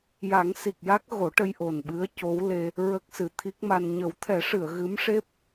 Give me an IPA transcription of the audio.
j a˨˩˦ ŋ s i˨˩ k̚ j a˦˥ k̚ ɣ o˨˩˦ ʈ ə˧ j ʔ o˨˩ n ɓ ɨ˧˥ ə̯ c o˧˥ w l e˧ | ɹ ə˦˥ k̚ s ɨ˨˩ t̪ʰ i˦˥ k̚ m a˧ n ɲ ə˨˩˦ w t̪ʰ ɛ˨˩˦ ʂ ɨ˨˩˨ ə̯ ɣ ɨ˧˥ m ʂ e˦˥ p̚

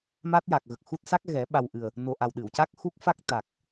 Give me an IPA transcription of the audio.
m a˦˥ t̚ j a˨˩ k̚ ɣ ə˨˩ k̚ x u˦˥ t̚ s a˦˥ k̚ ɣ ɛ˨˩˦ ɓ a˨˩ w ʔ ɨ˨˩ ə̯ | n o˨˩ ʔ a˨˩ w ɗ ɨ˨˩˨ w c a˦˥ k̚ x u˦˥ k̚ f a˦˥ k̚ t̪ a˨˩ k̚

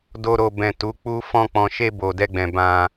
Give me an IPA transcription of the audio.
d o˧ ɾ o˨ b ɛ̃˨ t u˨˦ k͡p u˦ f ɔ̃˧ k͡p ɔ̃˨ ʃ e˧ b o˨ d ɛ˧ ɡ͡b ɛ̃˨ b ã˧

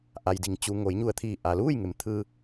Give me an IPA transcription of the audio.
ʔ a˩ j d i˩ ŋ t͡ɕ u˩ ŋ o˩˧ j ɲ u˧˩ ə̯ t̪ʰ iː˧˩ ʔ a˩ l uː˥˨ j ŋ e˩˧ m t̪ʰ ɯː˧

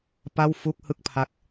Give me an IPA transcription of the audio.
p a˥˩ w f u˥˩ k̚ h ɯ˥˩ k̚ pʰ a˦˥ k̚

